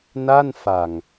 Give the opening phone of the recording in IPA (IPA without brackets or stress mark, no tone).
n